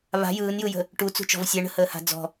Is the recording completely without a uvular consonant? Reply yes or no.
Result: yes